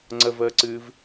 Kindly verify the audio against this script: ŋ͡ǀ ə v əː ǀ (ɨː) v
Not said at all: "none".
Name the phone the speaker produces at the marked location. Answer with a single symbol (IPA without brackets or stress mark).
ɨː